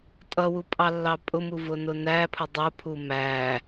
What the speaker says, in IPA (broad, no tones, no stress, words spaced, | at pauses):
tʼʌwupʼɑlːɑ pʼʊmuvʊnʊ næpʰʊ dˤʊpʰu mæ